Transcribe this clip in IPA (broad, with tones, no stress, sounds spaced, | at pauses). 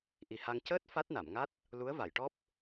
ʔ i˨˩ h a˧ ŋ c əː˦˥ t̚ f a˦˥ t̚ n a˨˩˨ m ŋ a˦˥ t̚ | l u˧˥ ə̯ v a˨˩˨ j ʈ ɔ˦˥ p̚